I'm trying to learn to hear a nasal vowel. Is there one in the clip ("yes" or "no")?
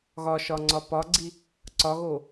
no